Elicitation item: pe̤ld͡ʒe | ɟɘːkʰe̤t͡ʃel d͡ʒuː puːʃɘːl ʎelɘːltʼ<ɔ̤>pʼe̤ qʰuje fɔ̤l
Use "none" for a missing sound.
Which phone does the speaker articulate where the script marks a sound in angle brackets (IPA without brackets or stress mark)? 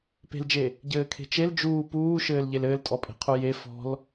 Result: ɔ